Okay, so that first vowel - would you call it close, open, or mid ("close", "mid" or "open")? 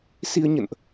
close